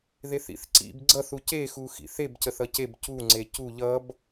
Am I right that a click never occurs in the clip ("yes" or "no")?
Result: no